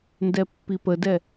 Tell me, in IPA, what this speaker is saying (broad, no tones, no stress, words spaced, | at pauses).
ndɛpːipədɛ